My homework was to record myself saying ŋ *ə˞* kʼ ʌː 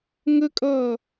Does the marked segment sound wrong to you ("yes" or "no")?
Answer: yes